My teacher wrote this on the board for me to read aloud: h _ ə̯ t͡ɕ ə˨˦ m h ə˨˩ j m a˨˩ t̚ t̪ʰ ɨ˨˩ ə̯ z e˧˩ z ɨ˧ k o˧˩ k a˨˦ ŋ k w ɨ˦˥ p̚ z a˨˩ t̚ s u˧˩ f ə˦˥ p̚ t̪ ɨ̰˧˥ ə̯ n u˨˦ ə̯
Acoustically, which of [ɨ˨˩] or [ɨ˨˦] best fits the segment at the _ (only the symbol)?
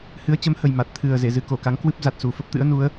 ɨ˨˦